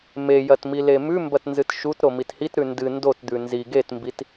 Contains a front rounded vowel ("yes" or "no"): no